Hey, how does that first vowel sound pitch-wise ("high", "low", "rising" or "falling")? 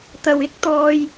low